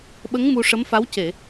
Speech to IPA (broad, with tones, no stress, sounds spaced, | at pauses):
ɓ ə˧˥ ŋ m u˧ ʂ ə˧˥ m f a˧˥ w c e˨˩˨